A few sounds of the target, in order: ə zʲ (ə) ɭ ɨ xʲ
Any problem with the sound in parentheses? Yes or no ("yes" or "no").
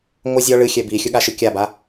yes